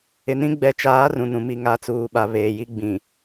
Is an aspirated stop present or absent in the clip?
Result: absent